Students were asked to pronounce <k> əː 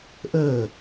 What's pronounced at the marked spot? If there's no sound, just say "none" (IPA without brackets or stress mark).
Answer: ʔ